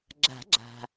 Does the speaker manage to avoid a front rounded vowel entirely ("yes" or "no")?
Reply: yes